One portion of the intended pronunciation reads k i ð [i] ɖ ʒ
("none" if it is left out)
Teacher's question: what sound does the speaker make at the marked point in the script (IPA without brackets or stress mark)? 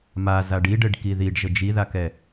i